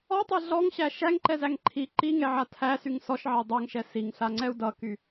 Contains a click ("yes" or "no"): yes